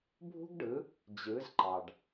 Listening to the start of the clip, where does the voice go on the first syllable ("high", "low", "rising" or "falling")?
high